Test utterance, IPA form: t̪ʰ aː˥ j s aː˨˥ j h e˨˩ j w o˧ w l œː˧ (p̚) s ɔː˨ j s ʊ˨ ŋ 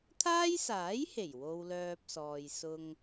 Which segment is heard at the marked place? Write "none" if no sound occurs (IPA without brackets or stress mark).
p̚